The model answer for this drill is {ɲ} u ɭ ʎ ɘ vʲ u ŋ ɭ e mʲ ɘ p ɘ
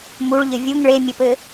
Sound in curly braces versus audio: incorrect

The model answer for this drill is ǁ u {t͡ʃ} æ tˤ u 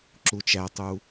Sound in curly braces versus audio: correct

